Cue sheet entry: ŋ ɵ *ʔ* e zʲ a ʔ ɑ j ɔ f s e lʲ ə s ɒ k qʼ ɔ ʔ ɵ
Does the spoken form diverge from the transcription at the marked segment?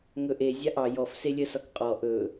no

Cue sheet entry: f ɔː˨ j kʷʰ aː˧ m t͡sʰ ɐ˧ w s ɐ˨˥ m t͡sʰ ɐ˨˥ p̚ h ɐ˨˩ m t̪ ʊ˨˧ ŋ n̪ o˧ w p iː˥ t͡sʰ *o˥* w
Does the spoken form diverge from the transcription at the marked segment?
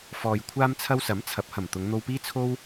no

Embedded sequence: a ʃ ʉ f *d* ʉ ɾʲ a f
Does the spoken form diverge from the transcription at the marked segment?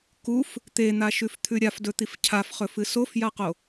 yes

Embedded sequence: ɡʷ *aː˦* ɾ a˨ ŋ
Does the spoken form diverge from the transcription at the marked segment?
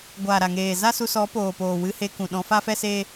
yes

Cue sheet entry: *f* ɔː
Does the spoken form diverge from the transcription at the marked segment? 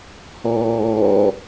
yes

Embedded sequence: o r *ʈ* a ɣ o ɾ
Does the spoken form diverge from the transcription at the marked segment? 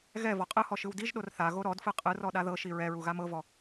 yes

